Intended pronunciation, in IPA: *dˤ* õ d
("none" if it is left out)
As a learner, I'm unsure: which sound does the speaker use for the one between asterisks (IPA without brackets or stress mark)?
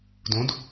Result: d